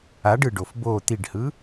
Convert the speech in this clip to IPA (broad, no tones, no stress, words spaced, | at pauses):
aɖ ɯɖof bo t̪iɖhɯ